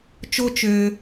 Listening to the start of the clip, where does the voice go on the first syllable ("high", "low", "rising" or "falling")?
high